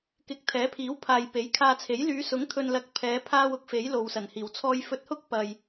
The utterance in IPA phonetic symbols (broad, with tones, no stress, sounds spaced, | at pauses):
k ɪ˨ k̚ t̪ʰ ɛː˨˥ pʰ iː˨˥ w pʰ aː˨ j p e˨˥ j kʰ aː˧ t͡sʰ e˨˥ j l yː˨˧ s ʊ˨˥ ŋ t̪ʰ ɵ˨ n l ɐ˨˥ k̚ pʰ ɛː˨˧ pʰ aː˧ w ʊ˨˥ k̚ f e˨˥ j l o˨ w s ɐ˨˩ n h iː˨˩ w t͡sʰ ɔː˧ j f ɵ˧ t̚ h ʊ˥ k̚ p ɐ˨ j